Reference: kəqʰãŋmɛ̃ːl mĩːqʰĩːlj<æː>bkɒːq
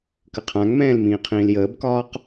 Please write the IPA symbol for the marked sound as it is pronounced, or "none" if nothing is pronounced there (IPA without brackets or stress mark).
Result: əː